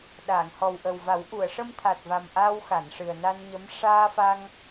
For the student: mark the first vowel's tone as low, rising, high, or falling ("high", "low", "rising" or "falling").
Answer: low